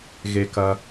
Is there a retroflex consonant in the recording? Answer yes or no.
no